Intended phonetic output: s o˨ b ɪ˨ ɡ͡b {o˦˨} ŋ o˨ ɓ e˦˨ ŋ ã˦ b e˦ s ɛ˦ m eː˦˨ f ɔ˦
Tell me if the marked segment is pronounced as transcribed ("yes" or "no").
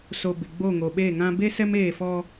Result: yes